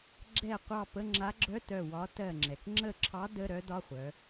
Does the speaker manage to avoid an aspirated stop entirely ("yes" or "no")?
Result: no